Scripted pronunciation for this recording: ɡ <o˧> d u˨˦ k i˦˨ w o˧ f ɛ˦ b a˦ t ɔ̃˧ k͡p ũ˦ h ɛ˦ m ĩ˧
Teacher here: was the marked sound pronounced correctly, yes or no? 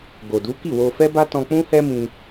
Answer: no